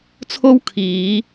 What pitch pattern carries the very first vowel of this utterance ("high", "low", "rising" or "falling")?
high